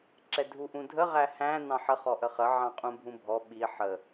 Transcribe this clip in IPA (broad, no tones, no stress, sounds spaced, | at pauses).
ǁ ɛ dʱ u ʔ ũ dʱ ə ʁ æ h æ̃ n ɑ̃ ħ ə χ ɔ ʔ ə χ ə ʕ ɑ̃ qʼ ũ bʱ ũ bʱ ɔ ɓ i ħ ə